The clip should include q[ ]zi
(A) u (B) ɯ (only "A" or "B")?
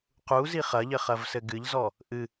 A